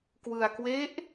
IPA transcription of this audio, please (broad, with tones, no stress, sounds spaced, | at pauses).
k w ɯ˧ a̯ k w e˦˥ ʔ